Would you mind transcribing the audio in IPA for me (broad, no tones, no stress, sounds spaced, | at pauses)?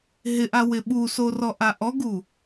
ɦ ɪ ʔ a w ɪ ɓ u s o r ɔ ʔ a ʔ ɔ ɡ u